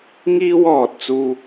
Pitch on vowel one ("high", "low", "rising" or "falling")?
high